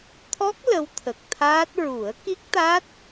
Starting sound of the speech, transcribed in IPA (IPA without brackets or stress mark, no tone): t̪ʰ